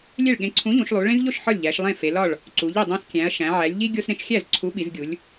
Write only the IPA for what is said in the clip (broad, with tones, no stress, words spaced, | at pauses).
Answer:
lʲe˥˩ɭɠẽ˨˥ ǀʰũ˨˥ʎũ˩˧ʃ lˠu˩˧ɭẽ˦zʎo˥˩ʃ ħɒ˥˩lʲʎæ˩˧ʃ lˠẽ˥˩fe˩˧lɒ˥˩ɭ | ǀu˩˧ʎi˥˩dˤæ̃˦s kʲæ̃˩˧ɐ̯ʃæ̃˩˧ ʕæ˩˧lʲʎi˦ ɡʲo˦sɾẽ˦ʃ xʲæ˥˩z ǀʰu˨˥ɓi˩˧zɡʲu˩˧lʲ